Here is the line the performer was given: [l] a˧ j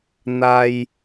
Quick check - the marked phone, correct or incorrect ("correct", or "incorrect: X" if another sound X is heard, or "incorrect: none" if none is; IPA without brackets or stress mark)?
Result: incorrect: n̪